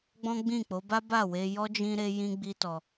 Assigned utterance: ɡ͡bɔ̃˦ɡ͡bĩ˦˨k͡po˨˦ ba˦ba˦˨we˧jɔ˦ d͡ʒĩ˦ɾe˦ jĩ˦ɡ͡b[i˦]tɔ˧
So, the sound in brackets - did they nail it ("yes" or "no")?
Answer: yes